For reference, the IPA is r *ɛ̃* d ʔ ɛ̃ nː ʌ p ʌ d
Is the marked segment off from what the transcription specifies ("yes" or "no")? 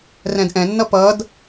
no